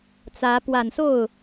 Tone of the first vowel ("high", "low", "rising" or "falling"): rising